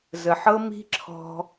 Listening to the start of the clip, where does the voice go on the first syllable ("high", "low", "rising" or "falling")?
low